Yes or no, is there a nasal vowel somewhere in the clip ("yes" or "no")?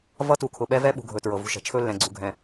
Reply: yes